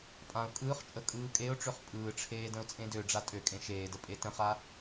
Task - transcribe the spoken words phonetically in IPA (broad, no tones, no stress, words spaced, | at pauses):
pʼãʊ̯ kʼɯːχt͡ʃʼə kʼɯːkʼeʊ̯ʈ͡ʂøχ pʼɯːʈ͡ʂʰeː də̃ʊ̯t͡sʼẽdøɖ͡ʐa tʼøkʼẽ ʃeːdə pʼetə̃χa